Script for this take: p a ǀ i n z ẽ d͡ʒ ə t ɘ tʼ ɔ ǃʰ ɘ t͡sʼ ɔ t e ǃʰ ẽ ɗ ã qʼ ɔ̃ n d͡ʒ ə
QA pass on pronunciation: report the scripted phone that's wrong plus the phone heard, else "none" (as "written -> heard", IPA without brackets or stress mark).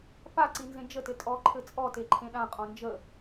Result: none